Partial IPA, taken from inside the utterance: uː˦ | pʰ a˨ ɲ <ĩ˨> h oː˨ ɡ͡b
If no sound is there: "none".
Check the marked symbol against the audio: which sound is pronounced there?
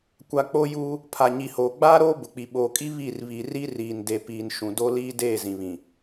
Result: i˨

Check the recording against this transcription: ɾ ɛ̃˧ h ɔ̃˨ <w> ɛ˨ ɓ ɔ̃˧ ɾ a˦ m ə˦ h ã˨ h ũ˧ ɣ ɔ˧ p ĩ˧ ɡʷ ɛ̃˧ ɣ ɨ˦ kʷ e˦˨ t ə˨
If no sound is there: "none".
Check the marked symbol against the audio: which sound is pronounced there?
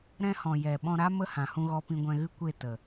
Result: j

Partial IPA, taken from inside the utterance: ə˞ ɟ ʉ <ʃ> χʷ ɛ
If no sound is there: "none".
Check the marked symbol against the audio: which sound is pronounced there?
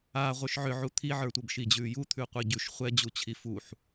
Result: ʃ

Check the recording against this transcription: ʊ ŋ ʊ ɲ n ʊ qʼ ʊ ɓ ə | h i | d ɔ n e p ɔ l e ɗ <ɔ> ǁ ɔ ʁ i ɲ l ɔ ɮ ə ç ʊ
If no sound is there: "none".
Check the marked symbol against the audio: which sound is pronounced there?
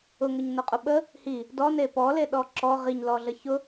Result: ɔ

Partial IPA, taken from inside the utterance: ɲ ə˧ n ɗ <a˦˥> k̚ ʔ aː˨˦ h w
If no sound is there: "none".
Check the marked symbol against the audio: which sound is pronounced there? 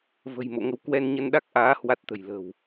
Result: a˦˥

